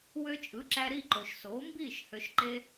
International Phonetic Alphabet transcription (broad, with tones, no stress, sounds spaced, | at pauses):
w ø˧ t͡ʃʼ ɯ˩˥ ǁ æ˧ ɾ i˥˩ ǃ o˩ ʃ s oː˩˥ m b iː˥˩ ʃ h ø˧ ʃ ǃ e˥